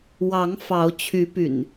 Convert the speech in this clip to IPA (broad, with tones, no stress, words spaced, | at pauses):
wɑ˨˦ŋ fɑ˨˦ʊ̯ t͡ɕʰy˨˦py̰˨˩n